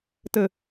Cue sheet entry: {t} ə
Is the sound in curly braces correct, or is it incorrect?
correct